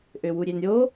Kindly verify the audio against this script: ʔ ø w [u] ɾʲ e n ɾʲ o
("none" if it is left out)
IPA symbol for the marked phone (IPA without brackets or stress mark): u